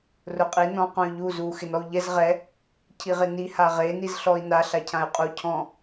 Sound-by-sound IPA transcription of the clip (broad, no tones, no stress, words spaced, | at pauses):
rʊqʼi nɔ̃ qõy̯ʎu zu xɪnɔu̯ʎɛz ʁɛ | cʰiʁɪni haʁe nizɬɔi̯na ɬacʰãy̯qʼu cʰɔ̃